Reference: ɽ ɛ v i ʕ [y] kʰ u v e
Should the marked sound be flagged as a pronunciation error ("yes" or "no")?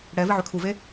no